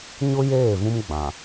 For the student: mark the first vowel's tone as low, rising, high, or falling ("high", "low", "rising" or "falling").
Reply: high